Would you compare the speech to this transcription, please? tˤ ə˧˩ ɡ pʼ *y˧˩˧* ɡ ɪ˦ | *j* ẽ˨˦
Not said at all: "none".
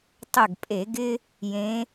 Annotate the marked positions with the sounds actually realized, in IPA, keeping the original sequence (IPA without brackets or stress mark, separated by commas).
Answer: e˧˩˧, j